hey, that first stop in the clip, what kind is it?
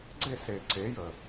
click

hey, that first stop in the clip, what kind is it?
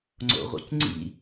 click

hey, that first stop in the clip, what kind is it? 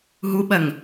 implosive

